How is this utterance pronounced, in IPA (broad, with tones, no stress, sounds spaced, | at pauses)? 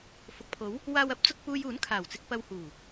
f ʊ˨ k̚ pʰ o˨˥ w | w aː˨ w ɐ˨˥ p̚ t͡s ʊ˨ k̚ p uː˧ j uː˨˥ n kʰ aː˨˩ w t͡s ɪ˧ k̚ p ɐ˧ w h uː˨˩